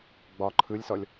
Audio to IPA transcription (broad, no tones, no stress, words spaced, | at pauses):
ɡ͡bɒ ǃʰɯlʲsɔlʲ